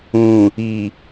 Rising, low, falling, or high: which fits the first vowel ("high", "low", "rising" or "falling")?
low